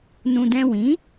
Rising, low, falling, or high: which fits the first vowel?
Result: low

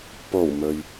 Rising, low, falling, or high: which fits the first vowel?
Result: low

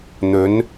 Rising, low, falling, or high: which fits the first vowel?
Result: rising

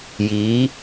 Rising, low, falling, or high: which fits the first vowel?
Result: rising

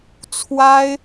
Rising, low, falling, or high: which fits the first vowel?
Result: high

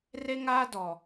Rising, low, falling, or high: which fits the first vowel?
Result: high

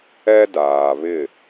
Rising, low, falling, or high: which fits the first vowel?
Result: high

